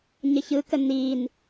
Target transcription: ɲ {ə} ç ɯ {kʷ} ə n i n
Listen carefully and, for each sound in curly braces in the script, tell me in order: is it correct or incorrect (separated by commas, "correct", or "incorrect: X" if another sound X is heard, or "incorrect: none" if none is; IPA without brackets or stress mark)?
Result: correct, incorrect: k